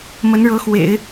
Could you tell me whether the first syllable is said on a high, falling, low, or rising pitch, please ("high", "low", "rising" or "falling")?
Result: rising